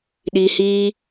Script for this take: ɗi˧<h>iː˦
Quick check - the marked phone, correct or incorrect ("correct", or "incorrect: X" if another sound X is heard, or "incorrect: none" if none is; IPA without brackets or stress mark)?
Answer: correct